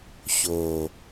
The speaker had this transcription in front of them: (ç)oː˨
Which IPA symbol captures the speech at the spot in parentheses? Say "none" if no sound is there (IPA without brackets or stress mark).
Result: ç